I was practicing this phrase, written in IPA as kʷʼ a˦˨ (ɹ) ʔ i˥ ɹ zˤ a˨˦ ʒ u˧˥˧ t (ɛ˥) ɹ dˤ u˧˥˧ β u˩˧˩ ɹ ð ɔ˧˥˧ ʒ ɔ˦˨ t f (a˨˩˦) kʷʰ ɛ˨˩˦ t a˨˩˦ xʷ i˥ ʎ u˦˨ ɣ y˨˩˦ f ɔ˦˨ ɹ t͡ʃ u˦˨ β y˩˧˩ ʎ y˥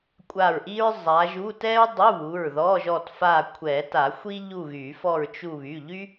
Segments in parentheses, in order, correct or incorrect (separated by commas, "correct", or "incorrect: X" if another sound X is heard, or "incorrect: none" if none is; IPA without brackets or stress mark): correct, correct, incorrect: a˦˨